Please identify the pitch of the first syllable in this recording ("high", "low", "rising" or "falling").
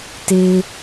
low